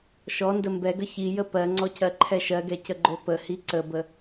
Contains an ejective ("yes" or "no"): no